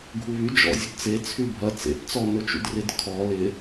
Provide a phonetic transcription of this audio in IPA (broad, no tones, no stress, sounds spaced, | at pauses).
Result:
ɡʱ u β y d͡ʒ ɔ̰ zʲ ɵ d t͡s e t͡sʰ y bʱ ɐ t͡s ḛ p t͡s ɔ n ɵ t͡ʃ ṵ d r ɪ d kʰ ɔ l ɪ